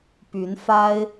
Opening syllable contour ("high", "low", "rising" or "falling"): rising